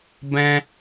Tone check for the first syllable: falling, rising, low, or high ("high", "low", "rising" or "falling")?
high